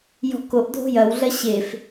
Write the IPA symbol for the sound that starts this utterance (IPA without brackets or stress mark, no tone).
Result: j